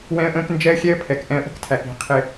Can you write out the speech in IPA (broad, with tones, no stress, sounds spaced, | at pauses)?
w ɛ̃˦ ə̯ ʔ ə̃ː˦ k n d͡ʒ ɛ˦ ə̯ xʲ ɛ˦ ə̯ pʰ ɛ˨ k ʔ ɛ̃˧ ə̯ ʔ ə̤˦ k tʰ æ˨ k i̤˧ qʰ ɪ˧